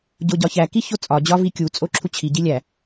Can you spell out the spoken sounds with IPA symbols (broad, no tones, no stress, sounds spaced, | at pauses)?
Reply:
ɟ o ɟ ɒ ç æ k i ç o t͡sʼ ɒ d͡ʑ ɒ v i kʲ u t͡sʼ o ǁʰ u t͡ɕʰ i ɟ i lʲ æ